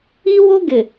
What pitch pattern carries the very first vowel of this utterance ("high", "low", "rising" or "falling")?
high